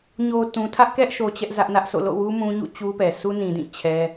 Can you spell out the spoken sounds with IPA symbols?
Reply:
ɲo˨ tũ˨tʰä˦ʔkɛ˦ʔʃo˨ t͡ɕɛ˦ʔzä˦ʔnä˦ʔso̰˦˨ lo̰˦˨wu˦ mũ˦ɲṵ˦˨t͡ɕu˦ pɛ˨ sʰu˦nĩ˨dĩ˦˨ t͡ɕʰɛ˦

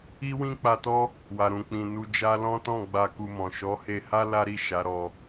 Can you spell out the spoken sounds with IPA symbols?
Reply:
i˦wĩ˦k͡pa˧tɔ˦ | wa˨ɾũ˨k͡pĩ˨ nu˧d͡ʒa˦ lɔ̃˦ tɔ̃˦˨ ɡ͡ba˧ku˧mɔ̃˨ ʃɔ˨˦he˧ha˦ la˦ɾi˦˨ ʃa˨˦ɾɔ˧

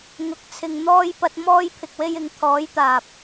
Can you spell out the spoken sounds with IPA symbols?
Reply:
ŋʊ˨k̚t͡sʰɪ˨ŋn̪ɔː˧jpɐ˧t̚ mɔː˧jpʰɪ˨k̚we˧jɪ˨˧ŋ t̪ʰɔː˨˧jt̪aː˨p̚

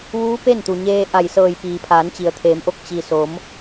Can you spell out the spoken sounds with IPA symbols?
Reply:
ʋuː˧˥ pe˥˨nt̪u˩ɲeː˧ʔa˧˩j sɤː˧˩jpiː˩ pʰaː˩˧nt͡ɕi˩ə̯t̪ʰeː˩˧mʔo˧k̚ t͡ɕi˩ so˩˧m

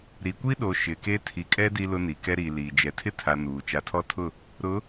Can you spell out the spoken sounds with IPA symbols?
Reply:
ɾi˨kʷi˦ɗo˨ ʃɪ˨ke˦ tʰi˨kʼɛ˦ di˦lʊ˦ni˨ kɛ˦ɾiː˨liː˨ d͡ʒɛ˨ tʰɪ˦tʰa˨ nuː˨ t͡ʃa˨tʰɔ˦tʰʊ˦˨ | ɾʊ˨˦

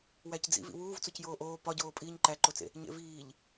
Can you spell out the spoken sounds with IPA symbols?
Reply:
wæcd͡zḭv ḭwuːv t͡socjoːʔoː pɒɟoː pʼiːɲǃæǃot͡sḛ | ɲḛviːʎ

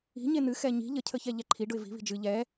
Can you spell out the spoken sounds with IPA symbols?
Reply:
i̤ɲe n̪ɨ xɛɲi̤ ʎəcʰəçɛ ʎɛǃʰi ɖʊɪ̯vi̤ βi̤d͡ʒɨ ʎɛ

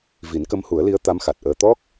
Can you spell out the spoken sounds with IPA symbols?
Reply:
vi˨˩˦nkə˧˥mhu˨˩˦ə̯li˧˥ə̯ t̪a˧˥mxa˨˩t̚ʔəː˧ t̪ɔ˦˥k̚

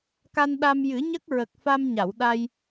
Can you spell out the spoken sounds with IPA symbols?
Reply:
ka˧nɗa˧m jɨ˨˩˦ɲə˦˥k̚ɹə˨˩k̚fa˧m ɲa˨˩˨wɗa˧j

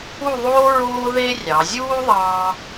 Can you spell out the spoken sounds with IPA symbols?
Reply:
u˥˧ðˤoː˥ ɹoː˥ðe˥ rʲɑ˩˧zʲuː˥ ðˤɑː˧

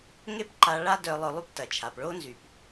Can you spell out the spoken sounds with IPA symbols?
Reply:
ŋe˥pǃa˧ ɭa˥dœ˧ lˠœ˧lˠy˥ptɐ˩t͡ʃʰa˩p ɭo˥nzy˩p

